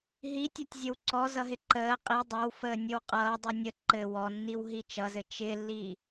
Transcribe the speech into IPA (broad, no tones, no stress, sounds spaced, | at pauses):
ɦ i tʲ ɔ tʲ zʲ ə w ǀ ɔ z ʌ ɦ ɪ ǃ əː qʼ i dˤ ʌ w f əː nʲ ɘ w qʼ ʌː dˤ u nʲ ə ǃ ɘ w ɔ nː i w ɦ i t͡ʃ ʌ z ɘ t͡ʃ ɪ lː i